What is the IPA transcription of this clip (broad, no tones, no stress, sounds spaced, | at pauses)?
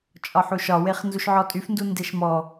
t͡ʃʼ ɒ ħ u ʃ ɒ w e χ n z u ʃ ʕ ɔ tʼ y f n d u n d e ʃ m ɔ